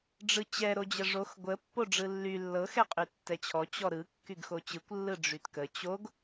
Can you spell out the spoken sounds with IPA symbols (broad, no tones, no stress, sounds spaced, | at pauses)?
ɖ͡ʐ ɯ t͡ɕ ɛ ɾ o d͡ʑ ə ʐ o x ɡʷ ə pː o ɖ͡ʐ ɯ lː y lː ɤ x ɛ qʼ y tː ɛ t͡ɕʰ ɔ t͡ɕ ɔ ɾ ɯ kː y ɡ x o t͡ɕ ɯ kʷ lː ɯ ɖ͡ʐ y t k ə t͡ɕ o ɡ